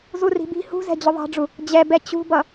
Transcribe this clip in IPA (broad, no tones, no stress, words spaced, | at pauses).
zuri̤bi̤ hṳzɛ̤ d͡ʑʊðˤɑ̤ɖ͡ʐu | d͡ʑɛbɛ t͡ɕṳbʌ